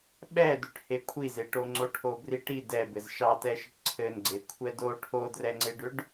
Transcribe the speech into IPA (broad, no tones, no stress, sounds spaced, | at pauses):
ɓ ɛ d ʏ ʈ h e kʷʰ i z e ʈ o ŋ͡ǀ o ʈʰ o b r i ʈ i d ɛ b ɘ z ʃ ɑ t ɛ ʃ ə ʈ ǀʰ ɘ n ɡ͡ǀ e kʷʰ ɛ d o ʈʰ o d r ɛ ŋ͡ǀ e ɖ ʏ ɖ